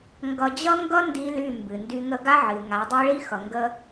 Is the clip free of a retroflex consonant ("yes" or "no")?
no